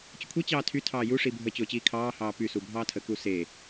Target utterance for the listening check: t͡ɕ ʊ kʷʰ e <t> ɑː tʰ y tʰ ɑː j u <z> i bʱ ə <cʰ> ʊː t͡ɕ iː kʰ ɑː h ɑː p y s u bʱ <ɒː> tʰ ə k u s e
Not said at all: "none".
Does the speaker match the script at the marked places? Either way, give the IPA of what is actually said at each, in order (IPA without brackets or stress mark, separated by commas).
t͡ɕ, ʂ, t͡ɕ, ɑː